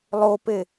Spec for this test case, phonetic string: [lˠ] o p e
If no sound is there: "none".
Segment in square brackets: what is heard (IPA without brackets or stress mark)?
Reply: lˠ